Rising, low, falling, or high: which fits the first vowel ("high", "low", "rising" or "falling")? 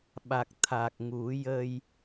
low